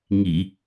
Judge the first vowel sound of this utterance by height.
high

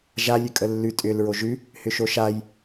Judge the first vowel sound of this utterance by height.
low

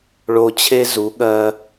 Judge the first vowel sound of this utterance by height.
mid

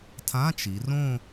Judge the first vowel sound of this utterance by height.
low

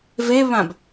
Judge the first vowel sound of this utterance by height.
mid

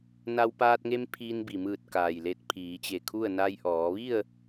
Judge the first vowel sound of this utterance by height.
low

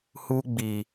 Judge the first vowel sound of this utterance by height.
high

